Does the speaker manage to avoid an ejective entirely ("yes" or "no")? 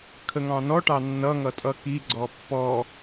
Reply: no